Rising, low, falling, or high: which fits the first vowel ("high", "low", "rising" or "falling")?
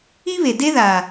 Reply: high